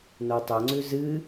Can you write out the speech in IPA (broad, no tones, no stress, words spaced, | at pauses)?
notˤɵŋ͡ǀʉ zɨ